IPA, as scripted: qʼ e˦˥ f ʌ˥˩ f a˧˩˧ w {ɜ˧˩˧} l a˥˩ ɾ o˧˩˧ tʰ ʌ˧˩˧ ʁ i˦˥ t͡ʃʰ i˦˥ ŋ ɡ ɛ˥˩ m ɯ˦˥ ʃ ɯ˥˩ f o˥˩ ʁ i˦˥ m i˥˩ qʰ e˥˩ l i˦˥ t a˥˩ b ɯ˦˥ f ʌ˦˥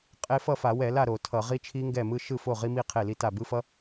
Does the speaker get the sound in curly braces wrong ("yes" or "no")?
yes